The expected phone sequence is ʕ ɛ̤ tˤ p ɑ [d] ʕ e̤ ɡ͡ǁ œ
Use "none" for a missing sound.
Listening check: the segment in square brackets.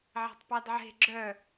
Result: d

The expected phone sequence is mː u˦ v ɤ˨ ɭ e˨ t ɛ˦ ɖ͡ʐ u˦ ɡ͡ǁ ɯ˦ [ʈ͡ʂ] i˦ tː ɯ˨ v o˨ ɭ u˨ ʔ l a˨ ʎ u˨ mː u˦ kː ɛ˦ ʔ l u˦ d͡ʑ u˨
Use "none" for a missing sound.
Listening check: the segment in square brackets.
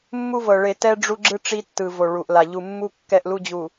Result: ʈ͡ʂ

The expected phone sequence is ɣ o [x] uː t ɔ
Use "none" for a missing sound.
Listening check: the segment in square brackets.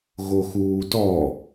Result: x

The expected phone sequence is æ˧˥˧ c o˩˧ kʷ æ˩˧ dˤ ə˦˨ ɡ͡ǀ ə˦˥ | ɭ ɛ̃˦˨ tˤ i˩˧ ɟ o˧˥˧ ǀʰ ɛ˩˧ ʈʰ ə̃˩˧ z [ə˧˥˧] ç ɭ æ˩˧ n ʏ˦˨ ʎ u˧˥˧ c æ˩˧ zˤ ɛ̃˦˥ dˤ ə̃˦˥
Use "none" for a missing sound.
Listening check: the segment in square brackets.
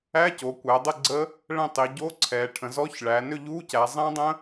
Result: ɔ˧˥˧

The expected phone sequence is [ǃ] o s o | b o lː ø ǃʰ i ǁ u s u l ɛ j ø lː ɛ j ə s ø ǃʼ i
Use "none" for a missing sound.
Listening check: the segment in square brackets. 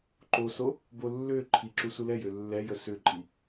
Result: ǃ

